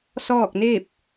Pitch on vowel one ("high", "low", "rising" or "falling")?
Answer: falling